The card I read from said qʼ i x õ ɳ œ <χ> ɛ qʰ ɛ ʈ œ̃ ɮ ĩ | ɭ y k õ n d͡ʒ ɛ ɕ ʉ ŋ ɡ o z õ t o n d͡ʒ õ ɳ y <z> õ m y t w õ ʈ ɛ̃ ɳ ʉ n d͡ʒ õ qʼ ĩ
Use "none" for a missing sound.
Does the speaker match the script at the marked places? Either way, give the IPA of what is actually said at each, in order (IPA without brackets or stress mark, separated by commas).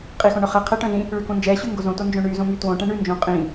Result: χ, z